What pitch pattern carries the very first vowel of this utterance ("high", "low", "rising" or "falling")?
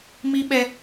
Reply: high